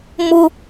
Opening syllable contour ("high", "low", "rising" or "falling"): high